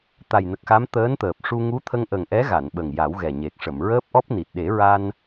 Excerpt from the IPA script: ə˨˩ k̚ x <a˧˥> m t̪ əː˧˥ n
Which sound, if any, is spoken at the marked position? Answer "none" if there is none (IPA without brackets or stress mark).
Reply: a˧˥